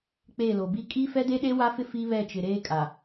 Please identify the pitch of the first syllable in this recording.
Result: falling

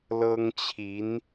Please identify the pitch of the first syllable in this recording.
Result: high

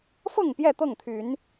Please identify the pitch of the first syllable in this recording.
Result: falling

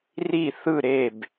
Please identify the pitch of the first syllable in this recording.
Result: falling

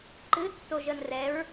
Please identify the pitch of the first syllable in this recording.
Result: rising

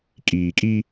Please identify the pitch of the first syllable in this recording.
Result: low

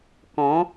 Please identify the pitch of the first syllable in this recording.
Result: rising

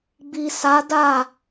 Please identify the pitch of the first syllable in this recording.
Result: low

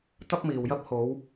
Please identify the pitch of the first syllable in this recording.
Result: high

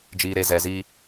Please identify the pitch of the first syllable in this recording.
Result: low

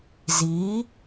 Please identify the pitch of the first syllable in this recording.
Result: rising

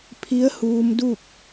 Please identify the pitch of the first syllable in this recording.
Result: rising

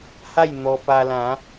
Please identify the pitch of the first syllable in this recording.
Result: falling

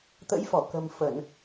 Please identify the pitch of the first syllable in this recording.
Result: rising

